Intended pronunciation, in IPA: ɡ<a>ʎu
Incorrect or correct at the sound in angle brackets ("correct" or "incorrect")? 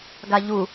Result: correct